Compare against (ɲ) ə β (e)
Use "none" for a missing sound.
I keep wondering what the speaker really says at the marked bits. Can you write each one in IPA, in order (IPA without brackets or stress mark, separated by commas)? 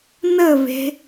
n, e̤